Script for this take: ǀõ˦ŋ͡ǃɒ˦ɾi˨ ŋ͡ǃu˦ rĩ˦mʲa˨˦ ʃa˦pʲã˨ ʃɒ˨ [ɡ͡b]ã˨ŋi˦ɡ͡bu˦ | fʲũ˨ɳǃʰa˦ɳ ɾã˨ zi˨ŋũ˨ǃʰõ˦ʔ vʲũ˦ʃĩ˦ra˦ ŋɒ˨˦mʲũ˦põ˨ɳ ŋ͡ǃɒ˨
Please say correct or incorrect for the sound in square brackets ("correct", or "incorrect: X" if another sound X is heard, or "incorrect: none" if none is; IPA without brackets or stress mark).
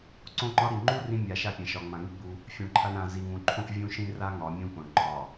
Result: incorrect: ŋ͡m